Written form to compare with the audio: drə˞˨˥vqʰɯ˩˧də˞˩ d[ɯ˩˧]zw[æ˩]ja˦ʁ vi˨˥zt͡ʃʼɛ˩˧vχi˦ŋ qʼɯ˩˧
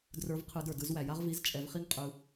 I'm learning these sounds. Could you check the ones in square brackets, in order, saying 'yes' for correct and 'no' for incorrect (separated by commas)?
yes, yes